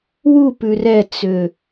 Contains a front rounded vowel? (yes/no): yes